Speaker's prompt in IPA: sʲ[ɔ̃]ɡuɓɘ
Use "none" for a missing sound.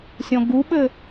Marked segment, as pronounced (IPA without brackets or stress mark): ɔ̃